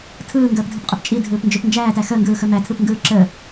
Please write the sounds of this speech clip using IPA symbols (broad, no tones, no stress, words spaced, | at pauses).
tʰɯːŋɡəːpdʱɯpqʼɯp t͡ʃʼidʱɯːpnd͡ʒɵp nd͡ʒæːtæ xəːŋɡɯːxɵ mætʰɯpŋɡɯː ǁə